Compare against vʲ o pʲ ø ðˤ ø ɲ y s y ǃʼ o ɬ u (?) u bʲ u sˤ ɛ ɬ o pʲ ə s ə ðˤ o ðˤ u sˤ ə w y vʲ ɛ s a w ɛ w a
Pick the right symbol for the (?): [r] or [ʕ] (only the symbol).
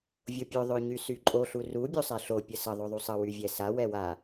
r